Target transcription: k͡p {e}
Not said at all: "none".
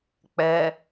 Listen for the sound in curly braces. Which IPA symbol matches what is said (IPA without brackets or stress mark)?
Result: ɛ